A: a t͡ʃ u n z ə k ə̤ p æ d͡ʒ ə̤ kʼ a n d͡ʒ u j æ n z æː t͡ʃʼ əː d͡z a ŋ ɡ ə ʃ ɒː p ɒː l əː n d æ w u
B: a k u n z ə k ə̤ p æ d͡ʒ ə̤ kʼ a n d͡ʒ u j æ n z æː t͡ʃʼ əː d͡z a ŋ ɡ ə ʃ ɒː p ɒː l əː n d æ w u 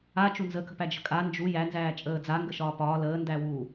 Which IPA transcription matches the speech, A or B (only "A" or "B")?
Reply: A